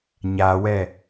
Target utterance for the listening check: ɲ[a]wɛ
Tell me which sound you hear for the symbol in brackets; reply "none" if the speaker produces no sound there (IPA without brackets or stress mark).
a